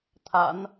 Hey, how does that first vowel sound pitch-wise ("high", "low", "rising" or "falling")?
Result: low